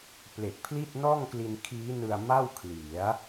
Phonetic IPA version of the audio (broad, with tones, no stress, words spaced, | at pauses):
ple˨˩k̚pʰli˥˩t̚ nɔː˥˩ŋkli˧nkʰiː˦˥nɯ˧a̯ ma˥˩wkʰli˩˦a̯